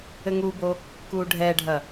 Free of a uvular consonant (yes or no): yes